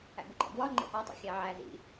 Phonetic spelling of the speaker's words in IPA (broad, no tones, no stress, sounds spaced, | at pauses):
æ̰ b u ɡ͡ǃ æ̰ b w ɒ ŋ͡ǃ ḛ ʔ ɒ tˤ ḭ xʲ æ ʕ æ z ḭ